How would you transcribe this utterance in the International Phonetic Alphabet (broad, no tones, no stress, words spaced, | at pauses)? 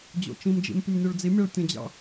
d͡ʑo̰t͡ʃĩmd͡ʒḭm pʲəmnʲoɭd͡zimʲaɭ tʲə̃d͡ʑɑ̰